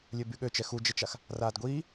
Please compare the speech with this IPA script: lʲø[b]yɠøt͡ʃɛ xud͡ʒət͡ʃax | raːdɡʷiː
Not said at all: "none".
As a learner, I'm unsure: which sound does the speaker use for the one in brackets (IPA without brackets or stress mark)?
b